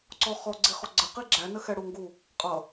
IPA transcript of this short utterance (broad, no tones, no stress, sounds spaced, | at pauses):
ǀ ɔ χ ɔ ɡ͡ǀ i χ ɔ ɡ͡ǀ ə q i ɡ͡ǁ æ n ə x ɛ ɽ u ŋ ɡ u | qʼ ʌ